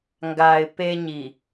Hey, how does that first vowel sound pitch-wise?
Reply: low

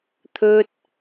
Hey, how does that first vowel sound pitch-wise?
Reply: high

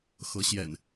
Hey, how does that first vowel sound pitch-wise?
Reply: rising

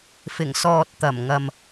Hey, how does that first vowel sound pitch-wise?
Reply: low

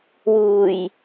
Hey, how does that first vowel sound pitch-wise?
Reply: low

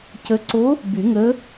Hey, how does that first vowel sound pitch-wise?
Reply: rising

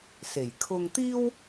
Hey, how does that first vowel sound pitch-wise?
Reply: low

